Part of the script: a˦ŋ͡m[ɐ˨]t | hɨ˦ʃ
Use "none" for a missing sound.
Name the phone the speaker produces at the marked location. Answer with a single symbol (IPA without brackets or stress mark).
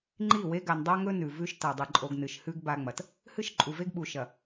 ɐ˨